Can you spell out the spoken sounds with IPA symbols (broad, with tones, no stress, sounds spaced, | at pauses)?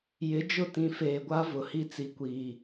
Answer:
j ɪ˨˦ d͡ʒ ʊ˦˨ t ĩ˨ f eː˨ ɡʷ a˦ v ʊ˨ h i˦ t͡s i˨ kʷ iː˨